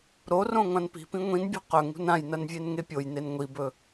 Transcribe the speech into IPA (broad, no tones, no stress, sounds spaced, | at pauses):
ɾ o r õ ŋʷ ã n p i̤ p ĩ ŋʷ ĩ n bʲ o̤ q ɵ ŋ ṳ n ã j n ɐ n vʲ e n ŋ e pʲ o j n e n ŋʷ i b ɵ